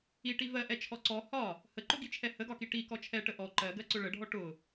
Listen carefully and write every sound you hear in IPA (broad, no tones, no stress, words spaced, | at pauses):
iʈi vɜʔɛt͡ʃʰɔ ǀɔ hɒ | həǃʊɡit͡ʃʰɛ həɡɒki ʈikɔ t͡ʃʰɛʈə ʔɔ ǃɜɡɜǀʊ ɭəɖʱɔ ʈʊ